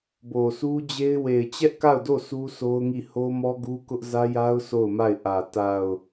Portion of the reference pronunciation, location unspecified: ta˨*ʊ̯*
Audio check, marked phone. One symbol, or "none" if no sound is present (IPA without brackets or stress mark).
ʊ̯